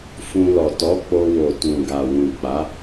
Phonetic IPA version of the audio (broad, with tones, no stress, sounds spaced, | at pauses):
f ũ˧ l ɔ˨ t ɔ˨˦ k͡p o˧ w o˨ t ũ˨ ɡ a˨ w ũ˨ k͡p a˨˦